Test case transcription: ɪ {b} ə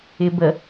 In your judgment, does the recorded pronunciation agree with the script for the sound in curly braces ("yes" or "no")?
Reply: yes